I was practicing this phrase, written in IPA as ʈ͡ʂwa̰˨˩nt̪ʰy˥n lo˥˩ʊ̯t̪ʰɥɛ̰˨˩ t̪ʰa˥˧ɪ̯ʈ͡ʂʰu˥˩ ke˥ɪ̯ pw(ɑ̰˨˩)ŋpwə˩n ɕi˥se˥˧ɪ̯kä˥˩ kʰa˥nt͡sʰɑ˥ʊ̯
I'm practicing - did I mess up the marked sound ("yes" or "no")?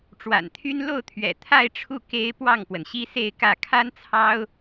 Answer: yes